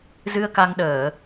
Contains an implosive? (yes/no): yes